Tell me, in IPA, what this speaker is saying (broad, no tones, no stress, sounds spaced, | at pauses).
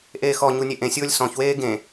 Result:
ʔ eː x ɔ ɲ u nʲ e ʔ ẽ sʲ ʊː lʲ s ɔ̃ ç w eː ɡ ẽ